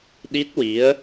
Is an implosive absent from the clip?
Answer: no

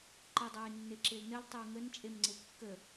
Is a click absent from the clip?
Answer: no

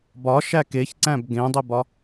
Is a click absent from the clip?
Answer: no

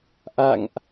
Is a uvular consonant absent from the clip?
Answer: yes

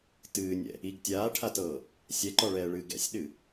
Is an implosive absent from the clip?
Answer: no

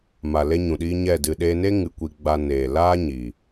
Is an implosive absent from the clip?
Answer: no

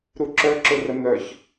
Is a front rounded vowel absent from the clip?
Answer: no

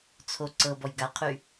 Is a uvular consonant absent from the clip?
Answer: no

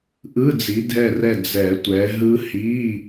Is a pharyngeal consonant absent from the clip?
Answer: yes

